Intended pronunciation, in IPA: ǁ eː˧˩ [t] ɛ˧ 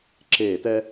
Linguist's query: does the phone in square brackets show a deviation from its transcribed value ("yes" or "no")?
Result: no